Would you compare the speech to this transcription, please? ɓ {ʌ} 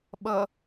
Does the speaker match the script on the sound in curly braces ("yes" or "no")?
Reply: yes